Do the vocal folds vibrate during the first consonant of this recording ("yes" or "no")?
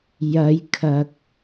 yes